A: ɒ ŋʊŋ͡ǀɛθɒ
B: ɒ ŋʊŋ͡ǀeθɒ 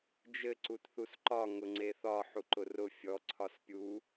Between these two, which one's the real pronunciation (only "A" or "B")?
B